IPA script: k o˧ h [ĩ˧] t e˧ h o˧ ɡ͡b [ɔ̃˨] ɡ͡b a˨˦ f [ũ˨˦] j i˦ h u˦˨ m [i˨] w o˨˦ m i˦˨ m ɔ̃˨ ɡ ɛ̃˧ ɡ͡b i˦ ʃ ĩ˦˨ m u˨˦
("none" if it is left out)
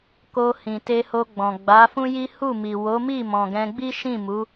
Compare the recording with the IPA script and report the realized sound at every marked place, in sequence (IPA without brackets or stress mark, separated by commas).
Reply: ĩ˨, ɔ̃˨, ũ˦, i˨